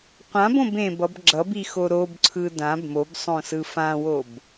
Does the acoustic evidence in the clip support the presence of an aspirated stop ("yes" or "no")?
yes